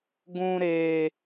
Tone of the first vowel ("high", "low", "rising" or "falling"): high